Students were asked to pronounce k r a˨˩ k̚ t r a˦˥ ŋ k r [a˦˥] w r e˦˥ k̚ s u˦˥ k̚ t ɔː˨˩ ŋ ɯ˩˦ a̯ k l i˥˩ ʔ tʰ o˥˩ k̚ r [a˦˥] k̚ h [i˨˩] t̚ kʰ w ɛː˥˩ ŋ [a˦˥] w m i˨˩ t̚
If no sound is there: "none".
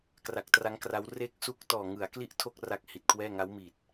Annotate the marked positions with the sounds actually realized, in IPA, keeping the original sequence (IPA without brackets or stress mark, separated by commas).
a˦˥, a˦˥, i˨˩, a˦˥